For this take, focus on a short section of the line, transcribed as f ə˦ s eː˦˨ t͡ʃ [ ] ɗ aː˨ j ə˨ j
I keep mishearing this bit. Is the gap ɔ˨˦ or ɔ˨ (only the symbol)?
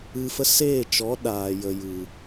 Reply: ɔ˨˦